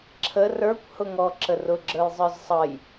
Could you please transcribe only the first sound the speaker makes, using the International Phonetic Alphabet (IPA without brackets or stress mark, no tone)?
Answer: ǁʰ